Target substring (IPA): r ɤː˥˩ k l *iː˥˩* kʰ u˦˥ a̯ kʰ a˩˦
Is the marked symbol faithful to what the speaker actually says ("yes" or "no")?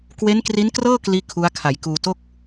yes